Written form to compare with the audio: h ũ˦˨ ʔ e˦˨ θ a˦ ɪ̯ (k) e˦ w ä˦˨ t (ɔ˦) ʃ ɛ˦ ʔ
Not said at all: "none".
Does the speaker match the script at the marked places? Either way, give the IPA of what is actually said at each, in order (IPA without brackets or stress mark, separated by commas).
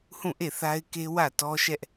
k, ɔ˦